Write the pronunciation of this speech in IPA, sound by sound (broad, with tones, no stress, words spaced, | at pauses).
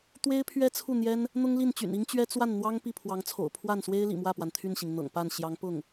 t̪we˥ɪ̯pʰɥɛ˥t͡sʰu˥˩ n̪jɛ˥n | n̪ʊ˥ŋli˥˩nt͡ɕy̰˨˩n i˥ŋt͡ɕɥɛ˥ t͡swa˥˩nn̪wɑ˥ŋ pi˥˩pʰwɑ˧˥ŋt͡sʰo̰˨˩ʊ̯ pʰwa˥˩nswe˥ɪ̯lḭ˨˩ mwä˥˩pwa˩n t̪ʰy˥˩nɕi˩ŋ n̪ɤ̰˨˩ŋpa˥˩n ɕjɑ˧˥ŋpʊ˥˩ŋ